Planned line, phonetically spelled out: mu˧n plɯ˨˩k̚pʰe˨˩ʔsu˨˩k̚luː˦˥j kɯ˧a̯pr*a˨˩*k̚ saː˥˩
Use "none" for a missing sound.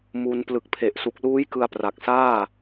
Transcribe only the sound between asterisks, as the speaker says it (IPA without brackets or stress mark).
a˨˩